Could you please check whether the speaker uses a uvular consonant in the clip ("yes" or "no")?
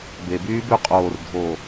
yes